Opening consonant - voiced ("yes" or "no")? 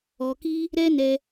no